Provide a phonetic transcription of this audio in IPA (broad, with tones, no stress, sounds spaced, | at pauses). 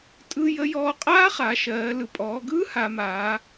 tʼ ɯ˧ j ə˧˥ j ɔː˧ qʼ aː˥ χ a˩˧ ʃ ɜː˩˧ l ɯ˩ pʼ ɔː˩˧ ɡ ɯː˥ h a˩˧ m aː˩˧